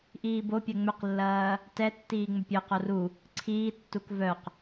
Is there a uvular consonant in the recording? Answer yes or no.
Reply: yes